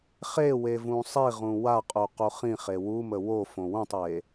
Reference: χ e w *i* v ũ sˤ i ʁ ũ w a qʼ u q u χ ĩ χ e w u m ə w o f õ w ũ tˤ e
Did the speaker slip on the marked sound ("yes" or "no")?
yes